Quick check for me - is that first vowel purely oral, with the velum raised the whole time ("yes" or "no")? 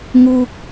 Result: yes